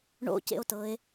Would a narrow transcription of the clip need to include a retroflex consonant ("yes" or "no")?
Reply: yes